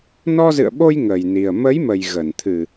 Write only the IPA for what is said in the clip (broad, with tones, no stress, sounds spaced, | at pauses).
n ɔ˧ z ɨ̰˧˨ ə̯ ɓ o˧ j ŋ ə˨˩ j n i˨˩ ə̯ m ə˨˦ j m ə˨˩ j ɣ ə˧˩ n t̪ʰ ɨ˨˩